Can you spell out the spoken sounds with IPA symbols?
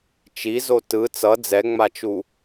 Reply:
t͡ʃ i z o t ɯ t͡s ʌ d͡z ɛ ŋ͡m a t͡ʃ u

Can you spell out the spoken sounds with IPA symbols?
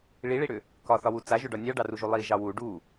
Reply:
ɭ i ɭ i ɽ ʏ | k ɒ θ ɒ w u t͡s a ʒ ʏ ɖ ɒ nʲ ɑ ɖ ɑ r u ʒ u lˠ i ʒ ɑ w u ɖ u

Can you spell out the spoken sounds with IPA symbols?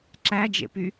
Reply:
ǁ æ d͡ʒ ḛ p y

